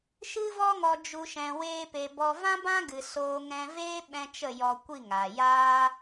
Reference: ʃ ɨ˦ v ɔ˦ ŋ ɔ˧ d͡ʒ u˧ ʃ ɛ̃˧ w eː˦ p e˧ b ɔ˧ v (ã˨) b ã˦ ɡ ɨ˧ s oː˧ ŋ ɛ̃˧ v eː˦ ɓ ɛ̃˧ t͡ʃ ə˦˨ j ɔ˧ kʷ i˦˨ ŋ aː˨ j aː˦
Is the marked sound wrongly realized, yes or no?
yes